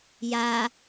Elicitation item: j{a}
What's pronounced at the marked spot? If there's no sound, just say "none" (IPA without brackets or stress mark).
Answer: a